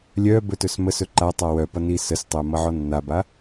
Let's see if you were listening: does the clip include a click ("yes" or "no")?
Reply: yes